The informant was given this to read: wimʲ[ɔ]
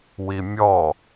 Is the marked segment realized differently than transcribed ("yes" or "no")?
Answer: no